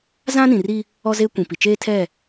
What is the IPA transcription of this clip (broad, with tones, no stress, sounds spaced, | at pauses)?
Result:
z ã˦ n ĩ˨ r i˦ | ɔ˦ z e˦ kʷ ĩ˨ p i˨ t͡ʃ eː˦ tʰ ɛ˦˨